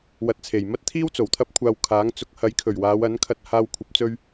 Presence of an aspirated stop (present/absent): present